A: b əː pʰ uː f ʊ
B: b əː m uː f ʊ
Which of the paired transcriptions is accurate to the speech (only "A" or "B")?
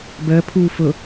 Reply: A